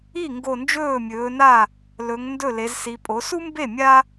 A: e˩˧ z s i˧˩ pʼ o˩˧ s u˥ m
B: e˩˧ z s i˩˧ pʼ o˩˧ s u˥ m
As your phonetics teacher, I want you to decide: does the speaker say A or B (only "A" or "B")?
B